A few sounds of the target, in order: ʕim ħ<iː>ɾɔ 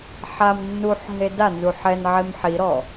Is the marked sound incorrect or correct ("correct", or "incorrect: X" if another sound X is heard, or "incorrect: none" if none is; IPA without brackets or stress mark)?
incorrect: i